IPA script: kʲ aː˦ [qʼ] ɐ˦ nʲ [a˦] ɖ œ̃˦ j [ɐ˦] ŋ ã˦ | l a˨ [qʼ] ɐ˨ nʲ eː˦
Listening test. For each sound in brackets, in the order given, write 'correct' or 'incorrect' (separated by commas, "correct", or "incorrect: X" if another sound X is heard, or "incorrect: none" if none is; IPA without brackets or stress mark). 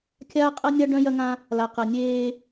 correct, correct, correct, incorrect: q